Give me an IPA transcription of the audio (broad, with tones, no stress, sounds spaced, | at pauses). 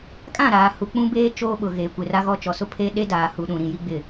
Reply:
kʼ ã˦˨ ɾ aː˨ h u˨ k͡p ũ˦ b eː˦ t͡ʃ oː˦ ɓ ʊ˨ ɣ eː˨ kʷ e˨ r a˦ ɣ ɔ˦ t͡ʃ ɔ˨ s ʊ˦ pʰ e˦ ɗ e˦ d aː˨ h u˨ ɗ ũ˨ ɾ ĩ˨ j i˦ ɡ͡b ɪ˦˨